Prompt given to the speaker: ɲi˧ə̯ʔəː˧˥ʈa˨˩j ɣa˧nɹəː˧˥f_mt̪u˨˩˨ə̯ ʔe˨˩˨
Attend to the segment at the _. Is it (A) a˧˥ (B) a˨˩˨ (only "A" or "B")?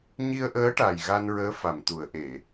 B